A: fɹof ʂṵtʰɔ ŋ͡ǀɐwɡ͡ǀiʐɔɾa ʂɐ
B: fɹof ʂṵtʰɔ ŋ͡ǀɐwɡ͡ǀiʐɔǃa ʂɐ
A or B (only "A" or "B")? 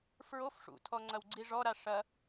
A